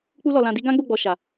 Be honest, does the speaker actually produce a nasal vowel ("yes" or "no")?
yes